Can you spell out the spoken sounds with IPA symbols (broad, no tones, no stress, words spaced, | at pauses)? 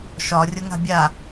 ʃɒ rʲɤŋa̤bʲa